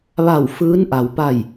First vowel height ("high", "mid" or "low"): low